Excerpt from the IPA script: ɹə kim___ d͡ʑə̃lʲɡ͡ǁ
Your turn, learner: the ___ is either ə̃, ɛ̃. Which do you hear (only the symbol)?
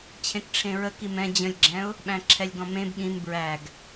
ɛ̃